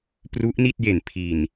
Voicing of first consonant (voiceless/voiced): voiceless